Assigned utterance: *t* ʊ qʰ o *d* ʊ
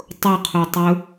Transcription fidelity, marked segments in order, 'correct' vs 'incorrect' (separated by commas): incorrect, incorrect